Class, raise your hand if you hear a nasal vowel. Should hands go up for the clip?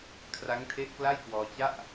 no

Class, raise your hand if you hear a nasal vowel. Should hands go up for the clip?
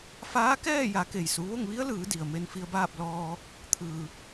no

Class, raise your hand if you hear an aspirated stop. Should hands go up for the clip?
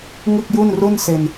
no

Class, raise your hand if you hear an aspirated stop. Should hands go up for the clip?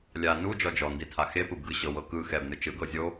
yes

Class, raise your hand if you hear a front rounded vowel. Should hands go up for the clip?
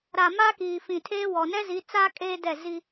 no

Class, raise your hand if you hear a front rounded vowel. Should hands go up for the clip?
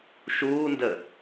no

